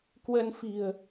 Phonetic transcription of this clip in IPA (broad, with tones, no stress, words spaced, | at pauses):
kwə˧nfi̤˨˩ə̯